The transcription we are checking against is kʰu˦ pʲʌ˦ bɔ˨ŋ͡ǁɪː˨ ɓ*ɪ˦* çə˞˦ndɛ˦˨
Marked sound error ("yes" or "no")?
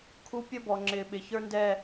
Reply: yes